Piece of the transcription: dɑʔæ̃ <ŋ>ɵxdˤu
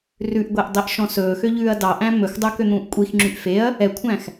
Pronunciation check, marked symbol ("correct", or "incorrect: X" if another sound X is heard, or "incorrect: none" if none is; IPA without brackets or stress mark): incorrect: m